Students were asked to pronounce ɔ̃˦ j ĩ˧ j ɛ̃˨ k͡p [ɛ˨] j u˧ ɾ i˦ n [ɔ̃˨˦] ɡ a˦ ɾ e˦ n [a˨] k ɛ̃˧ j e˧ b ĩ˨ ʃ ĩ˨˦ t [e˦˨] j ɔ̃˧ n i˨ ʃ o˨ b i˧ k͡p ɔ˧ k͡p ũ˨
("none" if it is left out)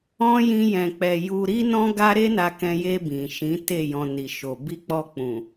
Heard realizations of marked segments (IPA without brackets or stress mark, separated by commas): ɛ˨, ɔ̃˦, a˧, e˦˨